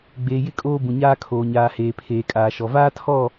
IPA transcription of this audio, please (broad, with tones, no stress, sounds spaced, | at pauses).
ɡ͡b eː˨ j ɪ˦˨ kʼ oː˦ b ũ˨ ɲ aː˦ kʰ oː˨ ɲ aː˨ h eː˨ pʰ eː˨ kʼ aː˨ ʃ ɔ˨ v aː˦ tʰ ɔ˦˨